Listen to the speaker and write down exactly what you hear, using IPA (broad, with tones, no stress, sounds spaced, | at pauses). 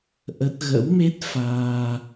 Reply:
ʔ ə˦˥ t̚ ɣ ə̰˧˥ w m e˦˥ t̚ f aː˧